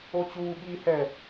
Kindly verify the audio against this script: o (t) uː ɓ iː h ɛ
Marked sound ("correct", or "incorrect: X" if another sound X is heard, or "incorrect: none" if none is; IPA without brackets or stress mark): incorrect: t͡ɕ